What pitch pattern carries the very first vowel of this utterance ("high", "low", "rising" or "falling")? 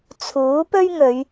rising